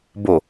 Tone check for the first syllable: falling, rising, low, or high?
low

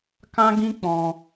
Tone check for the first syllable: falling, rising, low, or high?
high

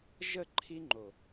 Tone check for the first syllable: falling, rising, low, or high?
falling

